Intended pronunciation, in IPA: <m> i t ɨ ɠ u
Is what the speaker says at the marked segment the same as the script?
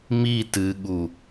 yes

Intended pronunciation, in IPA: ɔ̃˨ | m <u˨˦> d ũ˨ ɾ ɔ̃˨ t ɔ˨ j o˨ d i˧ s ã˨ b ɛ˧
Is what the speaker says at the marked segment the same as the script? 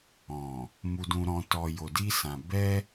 no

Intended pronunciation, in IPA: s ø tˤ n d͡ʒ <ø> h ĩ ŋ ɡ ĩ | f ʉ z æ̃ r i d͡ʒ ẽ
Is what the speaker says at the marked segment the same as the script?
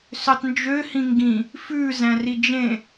yes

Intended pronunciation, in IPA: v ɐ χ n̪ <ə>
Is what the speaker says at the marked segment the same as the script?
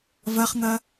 no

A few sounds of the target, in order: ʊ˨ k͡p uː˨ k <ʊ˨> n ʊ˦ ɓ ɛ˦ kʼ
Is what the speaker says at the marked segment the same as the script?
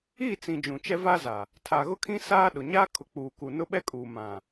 no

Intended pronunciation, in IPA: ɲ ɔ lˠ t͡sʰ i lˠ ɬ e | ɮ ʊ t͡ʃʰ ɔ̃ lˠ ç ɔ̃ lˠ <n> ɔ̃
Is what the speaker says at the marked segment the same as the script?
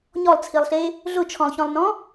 yes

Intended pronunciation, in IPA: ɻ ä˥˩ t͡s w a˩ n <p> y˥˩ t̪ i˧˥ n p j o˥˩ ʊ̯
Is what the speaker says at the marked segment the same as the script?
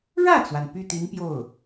yes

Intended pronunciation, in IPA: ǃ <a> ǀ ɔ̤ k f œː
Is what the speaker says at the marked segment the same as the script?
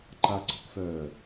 yes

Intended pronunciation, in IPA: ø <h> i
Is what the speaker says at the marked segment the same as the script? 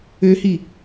yes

